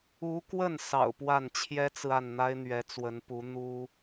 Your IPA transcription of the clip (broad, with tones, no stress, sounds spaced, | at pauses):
u˧˥ k w ə˥˩ n s ɑ̰˨˩ ʊ̯ p w a˥˩ n t͡ɕʰ j ɛ˥ t͡s ɹ̩˨ a˥˩ n n̪ a˥ ɪ̯ n̪ ɥ ɛ˧˥ t͡s w ə˧˥ n p u˧˥ n̪ u˥